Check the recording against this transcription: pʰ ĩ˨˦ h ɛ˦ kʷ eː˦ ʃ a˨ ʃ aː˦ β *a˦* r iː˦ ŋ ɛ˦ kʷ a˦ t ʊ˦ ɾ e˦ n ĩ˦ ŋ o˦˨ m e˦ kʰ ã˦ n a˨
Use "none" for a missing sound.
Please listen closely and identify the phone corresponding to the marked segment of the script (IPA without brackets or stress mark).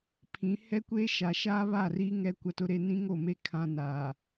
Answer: a˦˨